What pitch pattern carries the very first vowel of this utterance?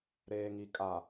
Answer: low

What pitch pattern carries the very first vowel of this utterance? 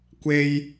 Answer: high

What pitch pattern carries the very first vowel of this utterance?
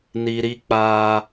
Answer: low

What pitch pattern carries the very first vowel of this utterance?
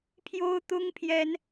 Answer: high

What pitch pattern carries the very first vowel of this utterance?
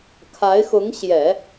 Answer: rising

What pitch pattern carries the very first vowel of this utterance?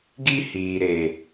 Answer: high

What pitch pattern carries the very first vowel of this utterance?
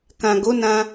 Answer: low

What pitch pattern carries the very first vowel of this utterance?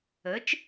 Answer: rising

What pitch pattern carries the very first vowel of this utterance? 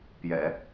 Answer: low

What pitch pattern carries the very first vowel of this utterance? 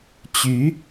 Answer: rising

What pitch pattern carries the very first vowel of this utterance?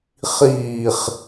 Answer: low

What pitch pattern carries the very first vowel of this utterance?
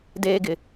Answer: high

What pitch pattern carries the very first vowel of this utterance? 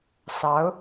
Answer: rising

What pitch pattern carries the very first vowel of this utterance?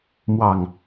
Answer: low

